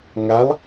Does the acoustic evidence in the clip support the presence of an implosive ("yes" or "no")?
no